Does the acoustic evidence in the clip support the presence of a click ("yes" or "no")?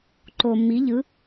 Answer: yes